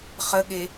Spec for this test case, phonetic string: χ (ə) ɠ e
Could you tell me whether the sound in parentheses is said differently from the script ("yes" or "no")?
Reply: no